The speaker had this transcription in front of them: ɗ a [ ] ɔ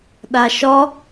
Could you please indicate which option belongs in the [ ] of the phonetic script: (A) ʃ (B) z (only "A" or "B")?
A